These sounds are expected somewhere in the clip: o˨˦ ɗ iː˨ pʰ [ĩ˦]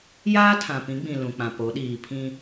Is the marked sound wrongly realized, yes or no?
no